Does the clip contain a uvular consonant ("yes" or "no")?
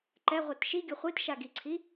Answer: yes